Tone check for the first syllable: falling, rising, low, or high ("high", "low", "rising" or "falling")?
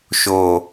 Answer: low